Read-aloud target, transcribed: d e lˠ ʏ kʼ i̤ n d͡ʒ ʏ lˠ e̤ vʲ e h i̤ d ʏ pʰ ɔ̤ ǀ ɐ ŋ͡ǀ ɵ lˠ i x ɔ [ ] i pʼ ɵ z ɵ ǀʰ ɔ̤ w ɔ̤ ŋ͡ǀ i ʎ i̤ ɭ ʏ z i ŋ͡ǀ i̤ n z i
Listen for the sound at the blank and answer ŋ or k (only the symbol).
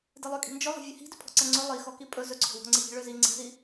k